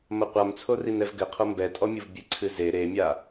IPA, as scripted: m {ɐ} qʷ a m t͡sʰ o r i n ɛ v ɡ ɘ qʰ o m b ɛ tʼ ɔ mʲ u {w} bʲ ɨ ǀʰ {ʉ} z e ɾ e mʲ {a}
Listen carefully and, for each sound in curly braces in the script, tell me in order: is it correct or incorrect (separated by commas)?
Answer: correct, incorrect, incorrect, correct